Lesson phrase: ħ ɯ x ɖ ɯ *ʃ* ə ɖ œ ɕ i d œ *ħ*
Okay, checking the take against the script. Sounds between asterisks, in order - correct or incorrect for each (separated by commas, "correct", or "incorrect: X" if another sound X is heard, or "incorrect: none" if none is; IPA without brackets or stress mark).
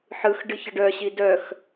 incorrect: ç, incorrect: x